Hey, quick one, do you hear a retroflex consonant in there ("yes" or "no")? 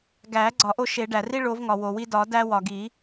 yes